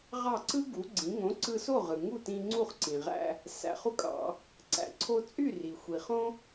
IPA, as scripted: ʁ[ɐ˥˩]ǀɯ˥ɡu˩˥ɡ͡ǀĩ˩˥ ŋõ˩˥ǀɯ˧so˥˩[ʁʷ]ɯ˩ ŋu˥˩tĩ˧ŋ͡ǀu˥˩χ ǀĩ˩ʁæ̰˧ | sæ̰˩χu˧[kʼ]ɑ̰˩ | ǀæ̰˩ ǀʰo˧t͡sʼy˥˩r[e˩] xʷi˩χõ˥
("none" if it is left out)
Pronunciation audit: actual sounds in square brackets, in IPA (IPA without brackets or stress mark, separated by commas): ɑ˥˩, ʁ, kʼ, i˩